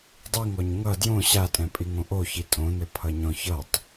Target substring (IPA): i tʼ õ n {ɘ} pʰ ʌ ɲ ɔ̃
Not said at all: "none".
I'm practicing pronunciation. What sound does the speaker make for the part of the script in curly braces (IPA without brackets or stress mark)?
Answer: ɘ